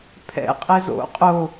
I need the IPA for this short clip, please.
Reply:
pʰ ɛ̰ qʼ e z o̰ qʼ o

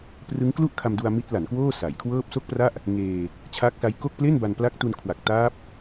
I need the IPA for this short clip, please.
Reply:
p r ɯ˦˥ ŋ k l u˥˩ ʔ kʰ a˧ m d u˧ a̯ m i˦˥ t̚ l a˩˦ n k w oː˥˩ s a˩˦ j kʰ w ɤː˥˩ p̚ s o˥˩ k̚ p r a˥˩ ʔ | ŋ eː˧ | t͡ɕʰ a˦˥ k̚ s a˦˥ j k o˥˩ k̚ p l e˥˩ n b a˧ n p l a˦˥ k̚ t u˧ n kʰ w a˨˩ k̚ t aː˦˥ p̚

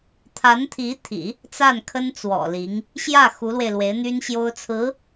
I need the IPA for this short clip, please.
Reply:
t̪ʰ a˧˥ n t̪ʰ i˧˥ t̪ʰ ḭ˨˩˦ | t͡s a˥˩ n kʰ ə˥ n t͡s w ɔ̰˨˩ l i˧˥ ŋ | ɕ j ä˥˩ x u˧˥ l w e˧ ɪ̯ l w e˧˥ ɪ̯ n̪ y˥ n ɕ j o˥ ʊ̯ t͡sʰ ɹ̩˧˥

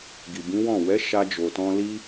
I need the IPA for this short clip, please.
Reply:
ɡ i˨ b ĩ˨˦ w ɔ̃˦˨ w ɛ˨˦ ʃ a˧ d͡ʒ o˨ t ɔ̃˧ l i˧

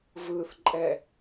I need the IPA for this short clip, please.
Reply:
v ɯ θ ǃʼ ɛ

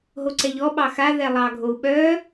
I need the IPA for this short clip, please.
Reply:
ɦ o ǀ ɛ ʎ ɔ ɓ ɑ x a ð ɛ lˠ ɑ ɡʱ o u̯ ɓ œ

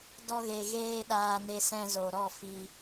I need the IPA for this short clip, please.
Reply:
d ɔ˧ ɣ e˨ ɣ eː˧ ɗ aː˧ n e˧ s ɛ̃˧ z o˨ ɾ ɔ˦˨ f i˧

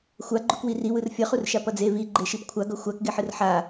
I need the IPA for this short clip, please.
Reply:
xʷ a ɡ͡ǃ u k w i r i w ɯ r fʲ ʌ χ u r ʃ a p ʌ d͡z e v i ɡ͡ǃ e ʃ i p kʷʰ a ɡ ʌ xʷ a k ɡ e ħ ɯ r ħ a

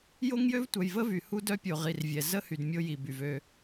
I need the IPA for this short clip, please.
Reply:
j o˦ ŋ j ø˦ v tʷ œ˨ j v ə˦ v y˨ h u˦ d œ˦ pʲ o˨ ʁ i˨ r vʲ ɛ˨ z ə˦ h y˨ d mʲ o˦ j i˨ b y˨ v ø˦

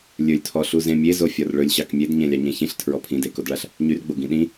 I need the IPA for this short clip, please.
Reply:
lʲ ɵ lʲ tʰ ɔ ɬ u z ẽ mʲ e z o fʲ ɒ r ɭ ɵ lʲ ɕ ɑ k mʲ e d ɲ ẽ lʲ ɑ ɲ ẽ ç ĩ ɬ tʰ ɹ ɔ pʰ ĩ d e k o d ɭ a ɬ | ɲ y r ɡ͡b o ɡ ĩ ɗ ĩ

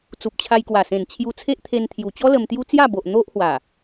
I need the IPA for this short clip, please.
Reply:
t͡s u˨ p̚ t͡ɕʰ a˧ j k w a˨˩ s ẽ˨˩ n t͡ɕʰ j u˧ t͡sʰ e˦ ʔ t̪ʰ e˧ n t̪ʰ j u˨˩ t͡ɕ ɔ˦ l ə˧ m t̪ j u˦ t͡s j a˥˧ b o˨ ʔ n̪ o˦ ʔ h w a˨˩

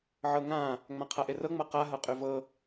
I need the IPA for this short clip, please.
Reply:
ʕ ɤ ŋ ã | ŋ͡m ã qʰ a ʔ e r ɤ ŋ͡m ʌ q a ɦ ʌ qʼ y v ɤ

